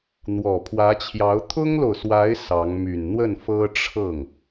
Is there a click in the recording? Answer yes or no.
no